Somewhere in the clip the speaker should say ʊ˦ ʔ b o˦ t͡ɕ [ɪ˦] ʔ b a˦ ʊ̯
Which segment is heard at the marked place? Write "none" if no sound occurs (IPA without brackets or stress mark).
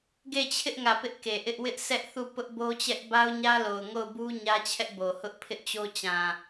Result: ɛ˦